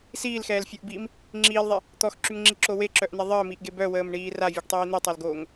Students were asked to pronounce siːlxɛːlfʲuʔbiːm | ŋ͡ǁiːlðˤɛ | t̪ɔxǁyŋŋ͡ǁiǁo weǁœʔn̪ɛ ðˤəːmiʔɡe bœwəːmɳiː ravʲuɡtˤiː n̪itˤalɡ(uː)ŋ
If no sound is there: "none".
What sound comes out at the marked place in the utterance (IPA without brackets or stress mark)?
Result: oː